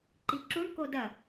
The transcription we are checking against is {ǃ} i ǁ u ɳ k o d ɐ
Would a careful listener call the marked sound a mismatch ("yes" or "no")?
no